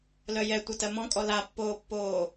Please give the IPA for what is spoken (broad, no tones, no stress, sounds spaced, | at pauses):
l œ j ɛ tʷ ʌ t ɜ m ɔ̃ kʼ ɔ l a pː oː pː oː